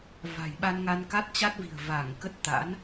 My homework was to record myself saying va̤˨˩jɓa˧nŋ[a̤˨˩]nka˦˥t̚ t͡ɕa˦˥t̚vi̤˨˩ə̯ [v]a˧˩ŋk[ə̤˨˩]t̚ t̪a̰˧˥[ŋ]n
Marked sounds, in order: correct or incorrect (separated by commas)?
incorrect, correct, incorrect, incorrect